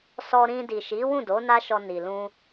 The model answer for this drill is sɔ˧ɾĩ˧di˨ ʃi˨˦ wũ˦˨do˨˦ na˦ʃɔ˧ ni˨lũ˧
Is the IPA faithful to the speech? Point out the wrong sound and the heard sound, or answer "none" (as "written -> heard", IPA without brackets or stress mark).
none